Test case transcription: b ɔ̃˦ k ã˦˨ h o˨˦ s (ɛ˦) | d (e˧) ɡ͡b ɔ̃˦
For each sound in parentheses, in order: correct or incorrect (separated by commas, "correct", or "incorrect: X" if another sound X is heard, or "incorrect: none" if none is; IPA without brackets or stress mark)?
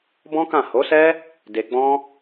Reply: correct, correct